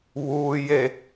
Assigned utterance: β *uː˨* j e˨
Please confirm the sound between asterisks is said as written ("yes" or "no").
yes